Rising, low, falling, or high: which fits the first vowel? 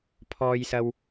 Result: high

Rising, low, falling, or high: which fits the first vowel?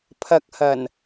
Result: low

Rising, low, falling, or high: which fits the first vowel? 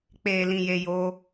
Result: low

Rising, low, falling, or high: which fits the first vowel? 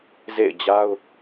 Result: falling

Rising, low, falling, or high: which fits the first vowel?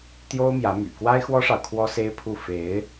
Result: high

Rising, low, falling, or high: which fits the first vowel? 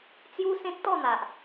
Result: high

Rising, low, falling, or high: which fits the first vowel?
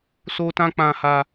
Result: high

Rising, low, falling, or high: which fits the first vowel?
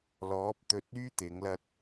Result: rising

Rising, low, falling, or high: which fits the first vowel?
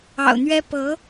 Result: low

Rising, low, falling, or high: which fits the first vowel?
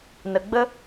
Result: low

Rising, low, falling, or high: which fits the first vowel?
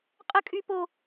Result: high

